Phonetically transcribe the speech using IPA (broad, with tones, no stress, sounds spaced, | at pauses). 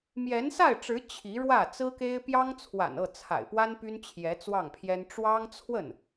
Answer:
m j ɛ˧˥ n s a˥˩ ɪ̯ ʈ͡ʂ ɻ̩˧˥ t͡ɕʰ i˧˥ ɻ w ä˥˩ t͡s ɹ̩˥ k e˥ ɪ̯ p j ɑ˥ ŋ t͡sʰ w a̰˨˩ n ɤ˥˩ t͡sʰ a̰˨˩ ɪ̯ p w a˥ n p y˥ n t͡ɕʰ j ɛ˧˥ t͡s w ɑ˥˩ ŋ pʰ j ɛ˥ n ʈ͡ʂ w ɑ˥ ŋ t͡sʰ w ə˥˩ n